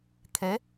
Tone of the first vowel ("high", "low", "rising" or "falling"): rising